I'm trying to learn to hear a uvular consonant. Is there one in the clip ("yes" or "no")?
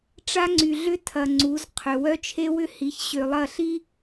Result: yes